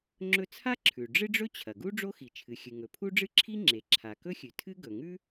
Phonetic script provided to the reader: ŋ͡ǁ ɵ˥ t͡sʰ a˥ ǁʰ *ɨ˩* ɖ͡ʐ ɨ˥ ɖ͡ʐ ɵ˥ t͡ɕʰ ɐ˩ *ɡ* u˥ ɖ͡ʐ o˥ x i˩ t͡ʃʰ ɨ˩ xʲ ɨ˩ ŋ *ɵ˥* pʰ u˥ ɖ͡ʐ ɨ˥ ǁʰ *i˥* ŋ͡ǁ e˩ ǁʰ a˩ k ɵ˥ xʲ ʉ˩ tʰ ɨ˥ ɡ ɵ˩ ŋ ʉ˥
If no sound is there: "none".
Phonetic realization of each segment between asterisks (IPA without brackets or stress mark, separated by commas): ʉ˩, ɡ, ɵ˩, i˥